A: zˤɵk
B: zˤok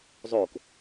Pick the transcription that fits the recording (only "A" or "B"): B